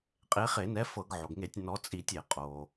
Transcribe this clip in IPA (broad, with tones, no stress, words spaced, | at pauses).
qʼe˨˦χe˧˩˧nɛ˨˦ fɤ˧˩˧ɡʕo˩ɡŋe˧˩˧tʲ nɔ˨˦ t͡sʼi˧˩˧tʲe˧˩˧ qʼo˩